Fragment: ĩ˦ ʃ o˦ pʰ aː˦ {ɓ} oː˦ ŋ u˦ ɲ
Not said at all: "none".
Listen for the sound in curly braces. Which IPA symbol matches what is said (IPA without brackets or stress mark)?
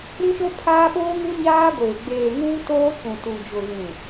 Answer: ɓ